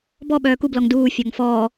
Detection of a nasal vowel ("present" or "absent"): absent